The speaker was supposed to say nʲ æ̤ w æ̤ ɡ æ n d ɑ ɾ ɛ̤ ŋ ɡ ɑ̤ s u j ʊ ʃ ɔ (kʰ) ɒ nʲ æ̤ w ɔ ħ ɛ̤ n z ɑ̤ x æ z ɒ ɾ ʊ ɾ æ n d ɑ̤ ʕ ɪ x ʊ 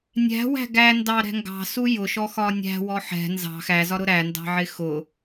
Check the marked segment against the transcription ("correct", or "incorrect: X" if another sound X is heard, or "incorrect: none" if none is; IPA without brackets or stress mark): incorrect: x